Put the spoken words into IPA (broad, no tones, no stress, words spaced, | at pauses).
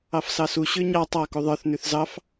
ɑfsɑsu ɕʉɲɑ tˤɑ kuðˤə˞θ nʉθzɑf